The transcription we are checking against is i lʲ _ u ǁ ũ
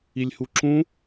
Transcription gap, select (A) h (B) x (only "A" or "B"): A